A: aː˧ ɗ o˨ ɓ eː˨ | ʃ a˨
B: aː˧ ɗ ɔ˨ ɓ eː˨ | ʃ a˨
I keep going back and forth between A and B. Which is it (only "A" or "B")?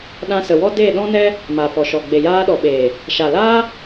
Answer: B